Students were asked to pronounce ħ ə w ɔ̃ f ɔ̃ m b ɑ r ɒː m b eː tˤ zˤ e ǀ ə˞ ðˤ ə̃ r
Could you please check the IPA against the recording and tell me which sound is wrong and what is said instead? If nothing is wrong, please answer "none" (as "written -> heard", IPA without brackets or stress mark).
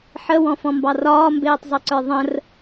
none